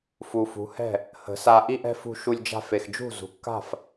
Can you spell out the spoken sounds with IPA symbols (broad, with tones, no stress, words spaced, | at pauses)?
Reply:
fu˨fṳ˨˦hɛ̤˦˨ | hə̤˨˦sa˧ ʔi˦ʔɛ̤˦fṳ˧ʃu˧lʲ d͡ʒa̤˧fe˨xd͡ʒṳ˦˨zṳ˨ kːa̤˦˨f